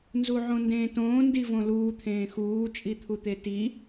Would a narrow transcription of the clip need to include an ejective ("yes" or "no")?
yes